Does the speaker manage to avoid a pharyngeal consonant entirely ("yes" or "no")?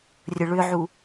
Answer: no